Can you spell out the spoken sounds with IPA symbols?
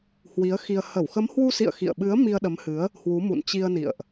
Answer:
h w i˨˦ ə̯ x i˧ ə̯ h ə˧˩ w x ə˨˦ m h w u˧ s ḭ˧˨ ə̯ x ḭ˧˨ ə̯ ɓ ɨ˨˦ ə̯ m i˧ ə̯ ɗ ə˨˦ m h ɨ˨˦ ə̯ | h w u˨˦ m ṵ˧˨ n t͡ɕ i˧ ə̯ n ḭ˧˨ ə̯ ʔ

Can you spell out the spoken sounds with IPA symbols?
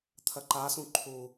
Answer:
t̪ʰ ɐ ǃ a s ũ ǃʰ u

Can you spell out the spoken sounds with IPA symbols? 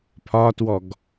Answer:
pʰ ɒ t w ɔ ɡ

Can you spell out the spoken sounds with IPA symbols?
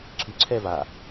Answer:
ǀʰ y ǀʰ ɛ v a

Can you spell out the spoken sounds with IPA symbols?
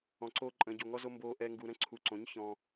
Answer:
ɔ̃˧ ǀ oː˦ ǃʼ ə̃ː˧ ɟ o˧ ŋ ɔ˦ z o˦ m b oː˧ ʔ ɛ˧ ŋ ɡ u˧ ɾ ə̃˦ ǀʰ u˨˦ ǀ õ˨˦ ɲ ç ɔ̃˧

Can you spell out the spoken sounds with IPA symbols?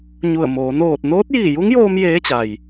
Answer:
ɲ u˧˩ ə̯ m oː˩˧ n oː˧˩ t̚ n oː˧˥ t̚ j iː˧˩ j u˧˥ ŋ j oː˧ m j eː˧˥ t͡ɕ a˩ j

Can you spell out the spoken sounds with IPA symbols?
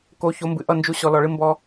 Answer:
k o˨˦ ç o˨˦ m b ɨ˨ ʔ ʌ˦˨ n d͡ʒ u˧ ɕ ɔ˨ l ɔ˨ ɭ ɨ˧ m b ɔ˧

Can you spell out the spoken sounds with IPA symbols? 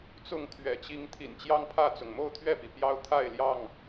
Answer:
t͡s ʊ˥˨ ŋ t̪ʰ ɥ ɛ̰˨˩ t͡ɕ i˦ ŋ t̪ʰ ḭ˨˩ n t͡ɕ j ɑ˦ ŋ pʰ ä˥˨ t͡s ʊ˩ ŋ m o˥˨ ʊ̯ t̪ʰ ɥ ɛ˥˨ p i˩ p j ɑ˦ ʊ̯ t̪ʰ a˥˨ ɪ̯ l j ɑ˥˨ ŋ

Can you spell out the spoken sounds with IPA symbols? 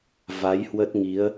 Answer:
v a˨˦ j h w ə˦˥ t̚ ŋ i˨˦ ə̯

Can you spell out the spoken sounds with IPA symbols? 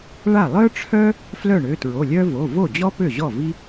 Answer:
ɭ a˥˩ lˠ œ˥ ʈ͡ʂʰ œ˥ | f l œ˥˩ ɳ ø˩˧˩ t ɹ o˩˧˩ lʲ œ˥ v o˩˧˩ v o˥˩ d͡ʑ ɔ˥ p ø˥˩ ʑ ɔ˥˩ v i˥

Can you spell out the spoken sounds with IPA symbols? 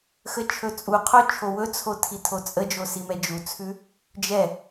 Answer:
x ə t͡ʃʰ ɵ t͡sʼ u qʰ o t͡ʃʰ o w ɵ t͡sʰ o tʰ i tʰ o t͡sʼ ə d͡ʒ o s i m ɛ d͡ʒ u t͡sʰ ʉ | d͡ʒ ɛ

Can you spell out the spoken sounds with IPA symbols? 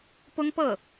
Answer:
p ʊ˥ ŋ p ɤ˥˩

